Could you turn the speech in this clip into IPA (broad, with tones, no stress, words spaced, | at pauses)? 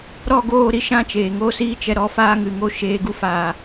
ɾɔ˦˨ɡoː˦˨ɾi˦ ʃã˧ t͡ʃeː˨ŋoː˦siː˦t͡ʃɛ˧ ɾɔ˨˦faː˧ŋɨ˨ŋo˧ ʃeː˧ɡu˦ faː˨